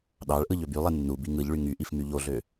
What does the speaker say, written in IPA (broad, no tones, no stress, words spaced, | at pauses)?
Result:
ɗɑɭʔɯ ʎøbylˠe nːu biŋɯʎɭy ŋyʔif myʎoɮø